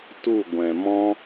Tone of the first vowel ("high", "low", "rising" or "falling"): falling